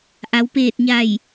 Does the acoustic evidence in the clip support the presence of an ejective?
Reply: no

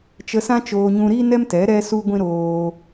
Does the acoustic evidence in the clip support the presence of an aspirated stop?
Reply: no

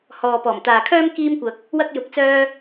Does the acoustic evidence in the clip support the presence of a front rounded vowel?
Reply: yes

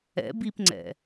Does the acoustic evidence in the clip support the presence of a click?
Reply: yes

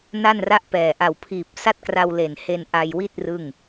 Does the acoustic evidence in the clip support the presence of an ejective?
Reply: no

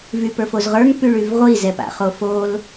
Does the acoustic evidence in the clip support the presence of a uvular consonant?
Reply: yes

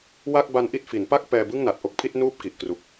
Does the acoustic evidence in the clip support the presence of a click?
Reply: no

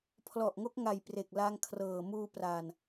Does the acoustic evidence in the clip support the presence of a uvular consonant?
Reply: no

